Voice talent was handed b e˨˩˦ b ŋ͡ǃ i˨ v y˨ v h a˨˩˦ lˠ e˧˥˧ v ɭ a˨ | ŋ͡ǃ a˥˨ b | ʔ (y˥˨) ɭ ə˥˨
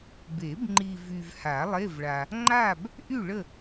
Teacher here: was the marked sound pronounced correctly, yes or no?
yes